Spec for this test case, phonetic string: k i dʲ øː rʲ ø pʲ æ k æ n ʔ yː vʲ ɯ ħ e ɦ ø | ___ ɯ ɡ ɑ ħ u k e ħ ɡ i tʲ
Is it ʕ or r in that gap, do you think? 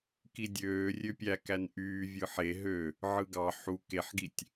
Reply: ʕ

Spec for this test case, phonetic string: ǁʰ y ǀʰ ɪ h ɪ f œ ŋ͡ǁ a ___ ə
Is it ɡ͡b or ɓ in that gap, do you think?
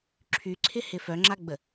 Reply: ɡ͡b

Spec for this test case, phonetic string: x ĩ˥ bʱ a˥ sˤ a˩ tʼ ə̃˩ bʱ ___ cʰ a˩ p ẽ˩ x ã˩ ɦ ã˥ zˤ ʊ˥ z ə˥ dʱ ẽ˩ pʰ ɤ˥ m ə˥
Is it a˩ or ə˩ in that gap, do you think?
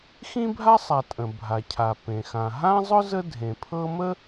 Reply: a˩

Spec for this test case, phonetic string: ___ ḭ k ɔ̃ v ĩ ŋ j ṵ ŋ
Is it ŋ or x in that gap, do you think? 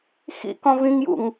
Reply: x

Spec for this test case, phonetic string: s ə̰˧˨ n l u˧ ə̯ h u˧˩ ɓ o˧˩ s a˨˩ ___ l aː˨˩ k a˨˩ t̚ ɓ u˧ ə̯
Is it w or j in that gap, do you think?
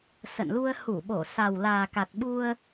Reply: w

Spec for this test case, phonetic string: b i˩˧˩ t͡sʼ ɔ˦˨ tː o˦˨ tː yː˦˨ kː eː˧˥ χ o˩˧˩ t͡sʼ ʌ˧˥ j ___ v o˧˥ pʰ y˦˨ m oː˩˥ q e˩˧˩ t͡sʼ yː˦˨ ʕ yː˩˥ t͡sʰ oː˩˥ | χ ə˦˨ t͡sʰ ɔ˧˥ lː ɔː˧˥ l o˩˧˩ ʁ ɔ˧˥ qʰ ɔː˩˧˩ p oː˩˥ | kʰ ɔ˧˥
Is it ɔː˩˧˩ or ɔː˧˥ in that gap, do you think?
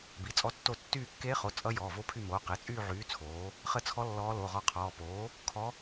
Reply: ɔː˩˧˩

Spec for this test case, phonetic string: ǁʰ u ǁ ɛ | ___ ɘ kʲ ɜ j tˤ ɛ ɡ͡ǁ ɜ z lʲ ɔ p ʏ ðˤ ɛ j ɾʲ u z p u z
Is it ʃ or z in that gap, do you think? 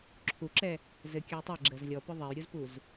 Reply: z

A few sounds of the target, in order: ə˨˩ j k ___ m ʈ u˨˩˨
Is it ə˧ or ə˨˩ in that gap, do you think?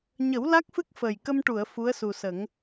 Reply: ə˧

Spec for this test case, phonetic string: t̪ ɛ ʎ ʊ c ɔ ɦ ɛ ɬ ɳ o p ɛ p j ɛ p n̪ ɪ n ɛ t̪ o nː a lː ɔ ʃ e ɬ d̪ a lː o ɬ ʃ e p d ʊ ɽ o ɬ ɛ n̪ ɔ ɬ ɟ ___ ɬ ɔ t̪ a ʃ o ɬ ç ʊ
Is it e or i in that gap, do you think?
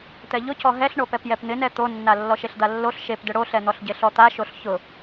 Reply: e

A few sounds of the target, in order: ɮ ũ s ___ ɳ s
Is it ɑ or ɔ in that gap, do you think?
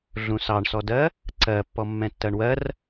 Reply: ɑ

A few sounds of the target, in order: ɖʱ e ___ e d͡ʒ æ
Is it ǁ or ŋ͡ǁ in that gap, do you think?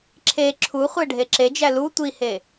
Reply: ǁ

